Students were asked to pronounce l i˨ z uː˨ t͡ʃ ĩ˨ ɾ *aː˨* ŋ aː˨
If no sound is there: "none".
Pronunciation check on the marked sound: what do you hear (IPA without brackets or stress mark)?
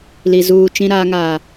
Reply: aː˨